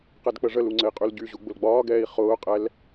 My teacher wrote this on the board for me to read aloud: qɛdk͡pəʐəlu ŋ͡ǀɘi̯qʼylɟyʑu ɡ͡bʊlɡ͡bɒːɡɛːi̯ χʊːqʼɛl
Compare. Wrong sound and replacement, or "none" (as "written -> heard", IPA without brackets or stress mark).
none